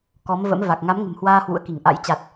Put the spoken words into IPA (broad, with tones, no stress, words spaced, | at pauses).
kɔ˨˦m və̰˧˥mva˨˩k̚ ŋa˨˦mŋə̤˨˩mhwaː˧ hwṵ˧˥ə̯ki˧˩ŋʔa̰˧˥j t͡ɕa˨˩t̚